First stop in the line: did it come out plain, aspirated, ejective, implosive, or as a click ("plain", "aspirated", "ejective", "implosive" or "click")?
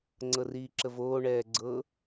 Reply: click